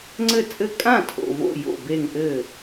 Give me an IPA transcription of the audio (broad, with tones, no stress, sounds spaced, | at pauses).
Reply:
ŋ͡ǀ ɘ˥˩ t͡sʼ ɘ˥˩ kʼ ã˥˩ tʰ o̰˧˩ v o̰˥˩ j o̰˧˩ b e˧˩ ŋ ʔ ɘ˧˩